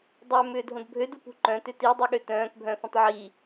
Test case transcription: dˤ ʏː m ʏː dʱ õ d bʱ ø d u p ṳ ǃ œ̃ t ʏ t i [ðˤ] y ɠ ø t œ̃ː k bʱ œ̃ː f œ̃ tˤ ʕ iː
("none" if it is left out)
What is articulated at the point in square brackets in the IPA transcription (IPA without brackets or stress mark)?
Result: dˤ